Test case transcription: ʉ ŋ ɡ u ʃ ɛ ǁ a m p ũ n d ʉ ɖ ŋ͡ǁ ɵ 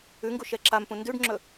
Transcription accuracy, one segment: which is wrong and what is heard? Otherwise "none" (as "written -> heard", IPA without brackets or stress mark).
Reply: none